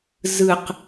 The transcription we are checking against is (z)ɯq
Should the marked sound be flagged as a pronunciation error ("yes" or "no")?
no